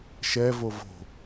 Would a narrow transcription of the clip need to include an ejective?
no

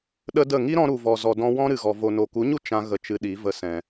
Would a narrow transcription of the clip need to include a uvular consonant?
no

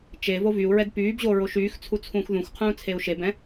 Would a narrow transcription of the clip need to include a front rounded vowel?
yes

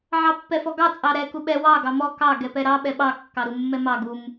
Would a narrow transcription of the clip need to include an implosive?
yes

